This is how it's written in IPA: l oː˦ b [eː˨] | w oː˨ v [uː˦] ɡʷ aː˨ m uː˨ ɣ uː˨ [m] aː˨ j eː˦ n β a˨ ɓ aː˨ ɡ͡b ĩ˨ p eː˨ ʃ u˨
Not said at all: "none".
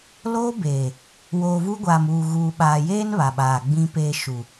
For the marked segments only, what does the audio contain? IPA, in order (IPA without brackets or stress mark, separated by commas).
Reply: eː˨, u˦, ɓ